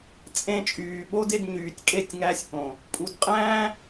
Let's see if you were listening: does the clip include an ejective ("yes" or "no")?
yes